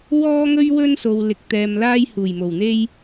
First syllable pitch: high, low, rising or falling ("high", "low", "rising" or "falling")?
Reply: high